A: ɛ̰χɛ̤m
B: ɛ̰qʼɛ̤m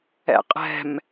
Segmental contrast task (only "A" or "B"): B